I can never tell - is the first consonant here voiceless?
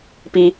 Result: yes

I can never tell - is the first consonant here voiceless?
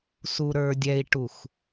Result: yes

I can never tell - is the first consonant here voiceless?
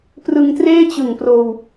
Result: yes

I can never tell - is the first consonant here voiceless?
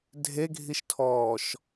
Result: no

